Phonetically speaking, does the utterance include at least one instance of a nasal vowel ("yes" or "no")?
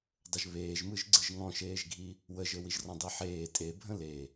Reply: yes